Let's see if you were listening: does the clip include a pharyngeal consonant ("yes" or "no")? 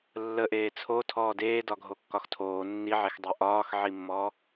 yes